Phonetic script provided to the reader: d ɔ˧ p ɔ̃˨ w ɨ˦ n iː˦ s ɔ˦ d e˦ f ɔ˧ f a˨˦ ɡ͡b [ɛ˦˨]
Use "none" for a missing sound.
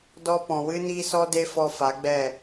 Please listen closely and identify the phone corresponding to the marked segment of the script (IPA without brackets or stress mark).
ɛ˦˨